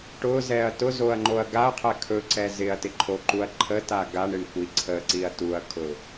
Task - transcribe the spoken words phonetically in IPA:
ʈ ʊ z ɛ ɐ̯ t ʊ z o ɐ̯ ŋ͡ǃ o ɐ̯ ɡ a ɐ̯ qʰ ɛ kʰ ɵ ǀ ɛ z ɪ ɐ̯ t ɪ ǃʰ o ǃ u ɐ̯ ǃʰ ə t a ɡ a ɳ ɪ ɳ kʷ i ǀʰ ə ǀ i ɐ̯ t u ɐ̯ kʰ ʊ

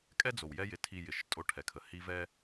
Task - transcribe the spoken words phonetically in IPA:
kʼ ɛ˥ d͡z o˩ w j ɛ˦ j ɪ˨ tʰ i˨ j ɪ˩ ʃ tʼ o˦ ʈʰ ɛ˩ kʰ ə˩ h i˦ v ɛ˥

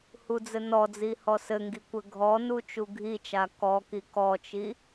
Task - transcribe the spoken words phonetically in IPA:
h u d͡z ɘ n ɔ d͡z i h ɔ s ɘ ŋ ɡ i kʷ ɘ ɡʱ ɔ n u t͡ʃ u ɡʱ i t͡ʃ a k ɔ k i k ɔ t͡ʃ i

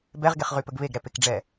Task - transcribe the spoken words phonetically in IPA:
b ɛ ʁ ɡ e χ ʁ y p ə ɡ β e ɡ ɾ ɛ p e k ɖ͡ʐ ɛ

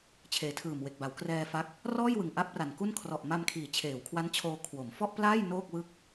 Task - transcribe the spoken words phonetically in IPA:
t͡ɕʰ eː˩˦ tʰ ɯː˨˩ m w e˨˩ k̚ b a˩˦ w k r ɛː˧ f a˦˥ k̚ | r ɔː˥˩ j w ɯ˨˩ ŋ ʔ a˦˥ p̚ r a˨˩ n k u˥˩ n kʰ r ɔ˨˩ ʔ m a˧ m kʰ iː˩˦ t͡ɕʰ eː˩˦ w kʰ w a˦˥ n t͡ɕʰ oː˧ kʰ w o˩˦ m f ɔ˥˩ ʔ p l aː˥˩ j n oː˥˩ k̚ w ɯ˥˩ k̚

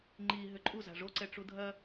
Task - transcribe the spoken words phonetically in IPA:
ŋ͡ǃ i ɦ ʏ ǃʼ u z a̤ ʐ o ǀ ɛ ʈ͡ʂ u dʱ ɐ

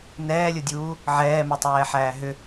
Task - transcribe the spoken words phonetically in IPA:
n ɛː lʲ ʊ dʲ uː | ʕ ɛː m e tˤ ɛː ħ æː ɦ ʏ

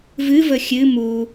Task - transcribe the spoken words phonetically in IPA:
v ɨ v ə xʲ ɨ m u

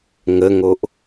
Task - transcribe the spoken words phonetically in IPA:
ŋ ə ŋ o ʔ

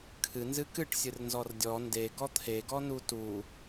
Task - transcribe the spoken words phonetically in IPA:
kʰ ɨ n z ɨ k ɨ ʈ sʲ ɨ r n z ɔ r dʲ ɔ n d e ɡ ɔ t̪ʰ e ɡ ɔ n u t u

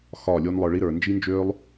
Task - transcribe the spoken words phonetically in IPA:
x ɒː˦˨ lʲ oː˦ n lˠ ə˞˧ ɭ i˦ ɾ ə˞˨ n d͡ʒ i˦ n d͡ʒ øː˦ lˠ

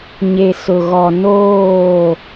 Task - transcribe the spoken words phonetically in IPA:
ɲ e˨ s ʊ˨ ɣ ɔ˨ n oː˦˨

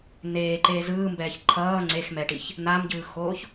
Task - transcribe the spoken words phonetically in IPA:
n̪ eː ǃ eː z ɯː m b ɛː ç ǃʰ ʌː ŋ͡ǀ e x m ɛ ʈ i ç | n̪ a m ɟ ɯː x oː ç

